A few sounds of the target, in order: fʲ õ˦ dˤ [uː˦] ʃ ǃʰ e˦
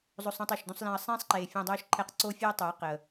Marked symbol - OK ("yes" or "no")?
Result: yes